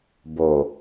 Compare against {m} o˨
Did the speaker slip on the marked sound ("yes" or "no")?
yes